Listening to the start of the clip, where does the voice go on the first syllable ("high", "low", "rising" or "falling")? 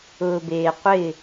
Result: low